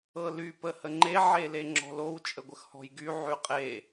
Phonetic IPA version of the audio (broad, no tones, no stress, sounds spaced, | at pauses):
ɤ l y p ə h ə ŋ͡ǃ e ʕ e l e ŋ͡ǁ ɔ̤ l o w t͡ʃʼ ə ɡʷ ə x h ɔ̤ j ɡ y ʕ y qʼ e